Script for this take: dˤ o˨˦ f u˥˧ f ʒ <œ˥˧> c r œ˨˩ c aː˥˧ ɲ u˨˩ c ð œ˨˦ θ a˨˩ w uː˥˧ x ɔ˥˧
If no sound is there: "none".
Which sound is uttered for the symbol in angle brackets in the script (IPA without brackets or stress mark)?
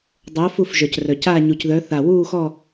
œ˨˩